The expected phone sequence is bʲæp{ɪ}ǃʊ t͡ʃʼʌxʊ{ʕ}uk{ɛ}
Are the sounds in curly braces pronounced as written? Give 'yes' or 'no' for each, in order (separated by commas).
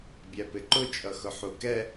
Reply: yes, no, yes